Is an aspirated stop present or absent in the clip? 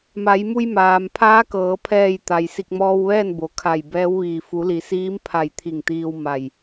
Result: present